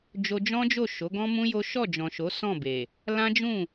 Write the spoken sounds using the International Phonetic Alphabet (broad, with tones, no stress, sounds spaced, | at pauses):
d͡ʒ o˧ d͡ʒ ɔ̃˦ d͡ʒ o˦˨ ʃ o˨˦ ɡ ɔ̃˦ m ũ˦ j o˦ ʃ ɔ˦˨ d͡ʒ ɔ̃˨ ʃ o˨˦ s ɔ̃˦˨ b e˨ | l ã˦ d͡ʒ ũ˦˨